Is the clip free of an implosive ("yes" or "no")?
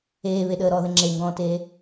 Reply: no